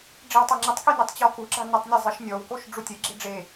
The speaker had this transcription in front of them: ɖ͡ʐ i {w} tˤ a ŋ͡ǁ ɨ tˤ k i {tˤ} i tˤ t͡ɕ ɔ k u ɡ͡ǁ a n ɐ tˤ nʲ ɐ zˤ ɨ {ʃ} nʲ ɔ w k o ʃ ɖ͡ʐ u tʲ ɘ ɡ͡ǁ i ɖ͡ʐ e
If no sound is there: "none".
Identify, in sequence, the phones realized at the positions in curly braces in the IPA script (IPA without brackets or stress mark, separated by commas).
w, n, ʃ